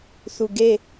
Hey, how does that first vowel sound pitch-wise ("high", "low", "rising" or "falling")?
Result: low